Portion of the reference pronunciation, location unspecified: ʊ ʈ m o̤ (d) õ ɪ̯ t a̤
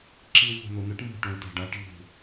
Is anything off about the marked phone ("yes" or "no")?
yes